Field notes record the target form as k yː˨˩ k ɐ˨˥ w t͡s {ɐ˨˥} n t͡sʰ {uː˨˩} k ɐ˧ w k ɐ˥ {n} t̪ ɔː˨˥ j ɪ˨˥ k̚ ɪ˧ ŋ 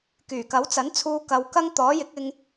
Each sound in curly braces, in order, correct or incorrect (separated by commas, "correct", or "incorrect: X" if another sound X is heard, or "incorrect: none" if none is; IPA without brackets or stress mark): correct, incorrect: uː˧, incorrect: ŋ